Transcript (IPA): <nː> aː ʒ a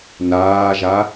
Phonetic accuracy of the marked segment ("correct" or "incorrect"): incorrect